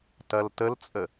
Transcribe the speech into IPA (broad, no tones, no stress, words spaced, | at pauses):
tɐltəlt͡sʼə